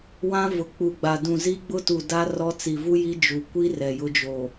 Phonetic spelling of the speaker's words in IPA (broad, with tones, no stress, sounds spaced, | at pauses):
w ã˦ v ʊ˨ k͡p u˨ ɡ͡b a˨ d ũ˨ z i˦ ɡ͡b ʊ˦ t u˨ d a˦ r ɔ˦ t͡s i˨ v u˦ j i˦ d͡ʒ u˨ kʷ i˦ r ɛ˨ j ʊ˦ d͡ʒ o˨